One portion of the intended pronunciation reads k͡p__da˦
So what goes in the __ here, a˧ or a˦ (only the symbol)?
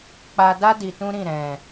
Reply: a˧